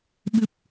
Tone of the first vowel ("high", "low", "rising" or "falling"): low